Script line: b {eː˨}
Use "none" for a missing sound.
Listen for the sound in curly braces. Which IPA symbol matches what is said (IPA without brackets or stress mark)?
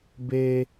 eː˦